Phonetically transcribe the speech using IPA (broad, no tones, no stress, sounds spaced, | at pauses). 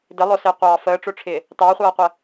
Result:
d ɪ lˠ ʊ s ɪː qʷ ɑː f əː ʈ͡ʂ ʊ ʈ͡ʂʰ ɪː | t ɑ χʷ ʌː qʷ ə